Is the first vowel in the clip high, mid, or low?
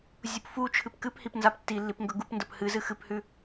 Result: high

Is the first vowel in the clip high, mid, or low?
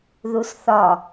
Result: high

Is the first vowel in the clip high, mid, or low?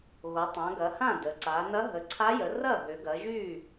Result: mid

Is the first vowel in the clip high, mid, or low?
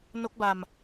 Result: mid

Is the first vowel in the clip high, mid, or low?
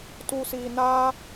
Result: high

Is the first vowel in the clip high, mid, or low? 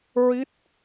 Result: high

